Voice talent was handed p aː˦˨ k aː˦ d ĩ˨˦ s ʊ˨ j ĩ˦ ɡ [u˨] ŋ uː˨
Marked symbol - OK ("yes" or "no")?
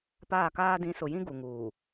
yes